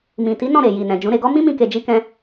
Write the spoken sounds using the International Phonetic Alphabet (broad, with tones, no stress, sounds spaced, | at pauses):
m ĩ˨ t i˨˦ n ɔ̃˦˨ ɾ e˨ j i˨ n ɛ̃˨ d͡ʒ ũ˨˦ ɾ e˧ ɡ ɔ˦ m ĩ˦ m ĩ˧ k e˧ d͡ʒ i˦ k ɛ̃˦